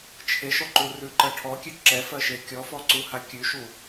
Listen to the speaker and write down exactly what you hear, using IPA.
t͡ʃʰ e ʃ ɔ ǃ u r ʉ ǃ ɜ ʈʰ ɔ kʲ ø ǁ ɛ f ɜ ʃ e kʲ ɔ f ɔ ǀ u h a kʲ ʉ ʃ u

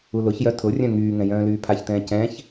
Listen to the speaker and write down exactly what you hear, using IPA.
u l ʊ ç j œ tʰ ʊ rʲ œ̃ ŋ yː ŋ ɛ̃ j œ̃ː l yː pʰ a ç t ɛ̃ː c ɛ̃ ç

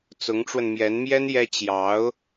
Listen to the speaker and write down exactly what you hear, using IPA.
t͡s ʊ˧˥ ŋ ʈ͡ʂ w ə˧ n m j ɛ˧˥ n m j ɛ˥ n j ɛ˥ t͡ɕ j ɑ˧˥ ʊ̯

